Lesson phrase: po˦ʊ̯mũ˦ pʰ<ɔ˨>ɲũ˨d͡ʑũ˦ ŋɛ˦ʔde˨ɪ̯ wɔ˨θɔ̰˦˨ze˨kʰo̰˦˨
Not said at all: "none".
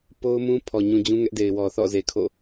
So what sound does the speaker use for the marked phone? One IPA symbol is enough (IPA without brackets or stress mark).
ɔ˨